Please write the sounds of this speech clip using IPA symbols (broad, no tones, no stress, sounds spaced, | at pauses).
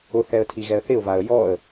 ʊ θ ɛ ə̯ tʰ i ɣ ɛ ə̯ θ ɪ ʊ̯ v a ə̯ j ɔ ə̯